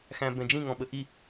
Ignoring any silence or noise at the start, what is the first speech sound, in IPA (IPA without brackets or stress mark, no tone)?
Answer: x